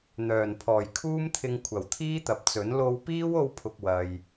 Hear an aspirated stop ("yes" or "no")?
yes